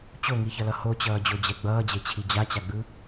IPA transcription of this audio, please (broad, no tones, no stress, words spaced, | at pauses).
t͡ɕoŋiçʌlʌ hot͡ɕʌːd͡ʑod͡ʑɛ ɡ͡bʌːd͡ʑet͡ɕʰi d͡ʑat͡ɕaɡ͡bɯ